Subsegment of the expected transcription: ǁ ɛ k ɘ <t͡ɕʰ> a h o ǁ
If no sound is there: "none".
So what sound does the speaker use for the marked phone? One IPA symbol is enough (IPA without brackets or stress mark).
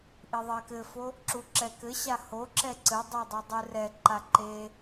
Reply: ɕ